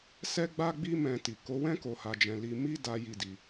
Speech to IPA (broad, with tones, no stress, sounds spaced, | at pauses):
s ɛ˦ ɡ͡b a˦ ɡ͡b i˦ m ɛ̃˧ t i˨ k o˨˦ w ɛ̃˦ k o˧ h a˧ d͡ʒ ɛ̃˧ l i˧ m i˦ d a˦ j i˦˨ d i˧